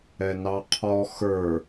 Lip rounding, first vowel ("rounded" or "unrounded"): unrounded